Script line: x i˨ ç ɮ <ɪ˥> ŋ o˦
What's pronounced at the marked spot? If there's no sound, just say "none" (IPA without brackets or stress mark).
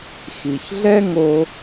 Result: ɛ˥